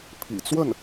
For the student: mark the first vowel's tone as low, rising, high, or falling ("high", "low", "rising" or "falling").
low